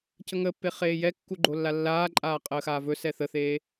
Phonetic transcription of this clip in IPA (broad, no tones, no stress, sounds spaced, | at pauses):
c ə ŋ əː pː e χ eː j ɛ kː u ɡ͡ǃ o lː a lː aː ǃʼ aː qʼ əː x aː v ɵ s ɛ θ ə θ eː